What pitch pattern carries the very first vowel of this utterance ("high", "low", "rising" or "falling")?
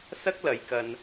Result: high